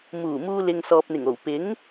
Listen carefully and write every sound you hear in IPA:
m uː˨˩ m uː˧ l ɪ˨ ŋ s ɔː˨ p̚ n̪ ɪ˨˩ ŋ o˨˩ w p ɪ˨˥ ŋ

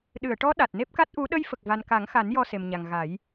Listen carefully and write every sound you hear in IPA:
ɗ ɨ˨˩˨ ə̯ ʈ ɔ˧˥ ɗ a˨˩ t̚ n e˦˥ p̚ k a˦˥ t̚ ʔ u˧˥ ɗ ə˧ j f ə˨˩ k̚ v a˨˩ n k a˨˩˦ ŋ x a˨˩˦ n j ɔ˧ s e˨˩ m ɲ a˨˩ ŋ ɣ a˨˩˦ j

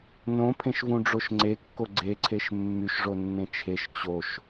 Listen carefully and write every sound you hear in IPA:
n õ pʰ ẽ ʃ v ũ ɖ͡ʐ o ʃ ŋ͡ǀ e kː o ɡ͡ǀ e ǀʰ e ʃ mː y ʃ ʐ o nː ẽ t͡ʃʰ e ʃ t͡ɕ o ʃ

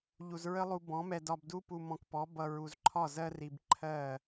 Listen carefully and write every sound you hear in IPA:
ʎ u˨ z ɹ ə˦ lˠ u˧ b ɔ̃˨˦ m ɛ˧ d ɒ˧ b d u˦ p u˧ m ɔ̃˧ k p ɔ˨˦ b ʌ˨ ɹ u˨ z ǃʰ ɒ˦˨ z ɜ˦ r i˧ b ǃʰ ɜ˦˨

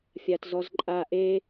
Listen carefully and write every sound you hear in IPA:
fʲ a t z ɔ z ǃʼ a ʔ e

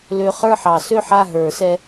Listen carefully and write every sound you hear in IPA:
l ø˧ χ ə˞˥˨ ħ ɑ˨˩˦ s ø˥˨ ħ a˥˨ ɦ ə˞˨˩˦ s ɛ˧

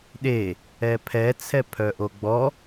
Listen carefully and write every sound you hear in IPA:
ɗ e | ɛ pʰ ɛ t͡sʰ ɛ pʰ œ ʔ o ɡ͡b ɔ

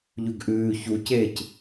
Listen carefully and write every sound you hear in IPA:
ʎ ʉ ɡ ʔ ʉː ç u c eː c

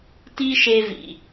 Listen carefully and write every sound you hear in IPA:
t i˦ ʃ e˧ v ḭ˨

